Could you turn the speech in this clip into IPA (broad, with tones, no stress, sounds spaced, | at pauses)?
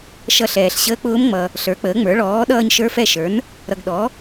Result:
ʃ ʌ˦˨ ɬ ɛː˨ ɬ ɕ əː˧˥ k͡p ʊː˧˥ m ŋ͡m ʌ˨ | ɬ ə˞˩˥ k͡p əː˩˥ ŋ͡m ə˞˩˥ ɭ ɔː˩˥ ɗ ʌː˦˨ ɲ ʃ ə˞˧˥ f ɛ˦˨ ʃ ə˞˩˥ n | ɾ ʌ˨ ɡ ɗ ɔ˩˥